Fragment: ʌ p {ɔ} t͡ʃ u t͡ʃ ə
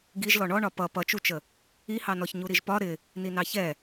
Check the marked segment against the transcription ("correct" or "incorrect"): incorrect